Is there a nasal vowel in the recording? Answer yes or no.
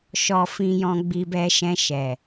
yes